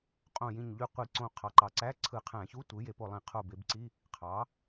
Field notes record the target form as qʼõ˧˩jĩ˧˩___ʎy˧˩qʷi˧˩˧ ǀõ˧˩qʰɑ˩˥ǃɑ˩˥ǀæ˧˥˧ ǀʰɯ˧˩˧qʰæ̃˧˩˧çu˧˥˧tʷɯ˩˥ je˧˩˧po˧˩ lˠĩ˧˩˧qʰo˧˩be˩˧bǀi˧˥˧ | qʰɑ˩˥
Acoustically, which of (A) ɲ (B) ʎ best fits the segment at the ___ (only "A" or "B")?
A